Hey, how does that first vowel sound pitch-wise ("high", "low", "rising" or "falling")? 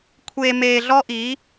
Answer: low